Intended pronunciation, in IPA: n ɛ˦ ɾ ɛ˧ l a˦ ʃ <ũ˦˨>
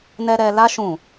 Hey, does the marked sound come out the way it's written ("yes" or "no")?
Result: yes